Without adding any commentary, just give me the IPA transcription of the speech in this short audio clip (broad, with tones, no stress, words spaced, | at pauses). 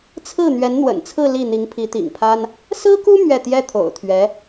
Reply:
t͡sʰɹ̩˥˩ n̪ɥɛ˧˥nn̪wə̰˨˩nt͡sʰɹ̩˥˧ li˥˩n̪i˧˥ŋ pʰi˧˥t̪ḭ˨˩ŋpʰa˥n | sɹ̩˥ku˥ mɥɛ˥˩ t̪jɛ˥t̪ʰo̰˨˩ʊ̯t̪ʰɥɛ˧˥